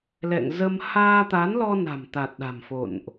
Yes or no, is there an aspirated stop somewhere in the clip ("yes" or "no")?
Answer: no